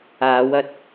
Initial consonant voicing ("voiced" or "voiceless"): voiced